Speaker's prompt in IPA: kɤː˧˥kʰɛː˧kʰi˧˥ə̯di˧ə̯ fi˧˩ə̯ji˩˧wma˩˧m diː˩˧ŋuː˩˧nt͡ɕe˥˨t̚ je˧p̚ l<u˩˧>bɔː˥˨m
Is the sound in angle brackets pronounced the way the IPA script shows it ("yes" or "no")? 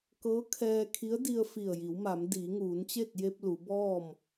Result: yes